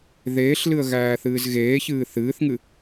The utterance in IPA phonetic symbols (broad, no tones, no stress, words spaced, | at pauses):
ðeːɬlɨə̯ ɣæːθɨːzɣeːçɨː θɨːθŋɨ